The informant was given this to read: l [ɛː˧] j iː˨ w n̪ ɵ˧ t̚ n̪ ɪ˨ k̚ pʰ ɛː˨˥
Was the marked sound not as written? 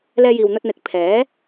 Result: no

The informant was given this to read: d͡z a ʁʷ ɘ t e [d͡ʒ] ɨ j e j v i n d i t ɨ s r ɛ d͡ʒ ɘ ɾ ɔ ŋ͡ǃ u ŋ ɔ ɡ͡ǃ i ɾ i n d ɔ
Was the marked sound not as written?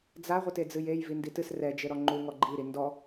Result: yes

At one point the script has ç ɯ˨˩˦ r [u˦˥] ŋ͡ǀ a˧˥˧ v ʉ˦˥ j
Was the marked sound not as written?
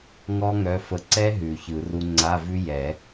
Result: no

